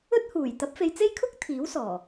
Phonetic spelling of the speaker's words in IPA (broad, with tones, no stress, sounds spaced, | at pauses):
ɵ˥ t̚ h uː˨˩ j t̪ ɐ˨˥ p̚ f e˨ j t͡s e˥ j kʰ ʊ˥ k̚ t̪ʰ iː˨˥ w s ɔː˨˩